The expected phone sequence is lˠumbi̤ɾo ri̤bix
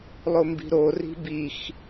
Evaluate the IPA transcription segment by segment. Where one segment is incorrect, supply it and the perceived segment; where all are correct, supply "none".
u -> o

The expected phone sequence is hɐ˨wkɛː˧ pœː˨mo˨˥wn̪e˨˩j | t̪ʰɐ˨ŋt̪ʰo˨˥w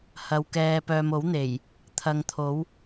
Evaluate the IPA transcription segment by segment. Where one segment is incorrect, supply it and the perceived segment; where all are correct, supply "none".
none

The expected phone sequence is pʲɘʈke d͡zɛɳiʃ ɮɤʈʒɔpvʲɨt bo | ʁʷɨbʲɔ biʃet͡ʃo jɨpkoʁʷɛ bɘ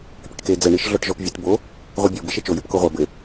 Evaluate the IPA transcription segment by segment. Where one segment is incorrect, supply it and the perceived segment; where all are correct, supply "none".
ɤ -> ɔ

